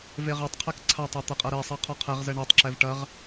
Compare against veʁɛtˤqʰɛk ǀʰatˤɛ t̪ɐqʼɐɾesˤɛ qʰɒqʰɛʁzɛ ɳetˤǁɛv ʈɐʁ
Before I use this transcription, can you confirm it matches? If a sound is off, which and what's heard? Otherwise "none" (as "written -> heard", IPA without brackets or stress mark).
none